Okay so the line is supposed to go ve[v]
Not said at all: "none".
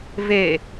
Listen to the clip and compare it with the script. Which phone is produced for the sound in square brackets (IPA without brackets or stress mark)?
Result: none